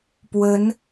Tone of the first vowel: rising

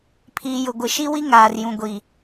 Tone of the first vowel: low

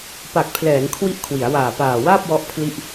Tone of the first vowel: low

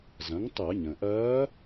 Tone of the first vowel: rising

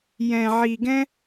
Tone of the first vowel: low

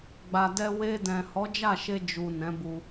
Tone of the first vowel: low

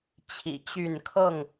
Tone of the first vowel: low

